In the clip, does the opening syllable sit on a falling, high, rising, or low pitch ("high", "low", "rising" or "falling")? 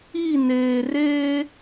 falling